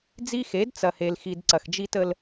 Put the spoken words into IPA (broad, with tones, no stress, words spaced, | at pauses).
d͡zi˦xe˨˦d t͡sɐ˨he˨lxi˨d ǀɐ˨xd͡ʒi˦tə˦l